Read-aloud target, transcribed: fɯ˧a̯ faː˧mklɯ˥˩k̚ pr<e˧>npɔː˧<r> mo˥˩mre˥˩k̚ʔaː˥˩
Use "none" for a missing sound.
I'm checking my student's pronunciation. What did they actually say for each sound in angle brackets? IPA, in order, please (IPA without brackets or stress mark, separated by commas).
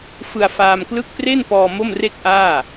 e˥˩, none